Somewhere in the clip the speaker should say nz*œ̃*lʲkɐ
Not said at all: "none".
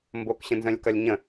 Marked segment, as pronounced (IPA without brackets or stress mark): œ̃